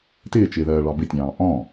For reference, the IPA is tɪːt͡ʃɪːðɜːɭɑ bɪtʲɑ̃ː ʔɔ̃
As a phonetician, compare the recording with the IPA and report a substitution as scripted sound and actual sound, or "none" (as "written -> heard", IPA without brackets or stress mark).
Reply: none